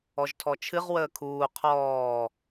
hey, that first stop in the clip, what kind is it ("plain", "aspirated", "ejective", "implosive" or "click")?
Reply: aspirated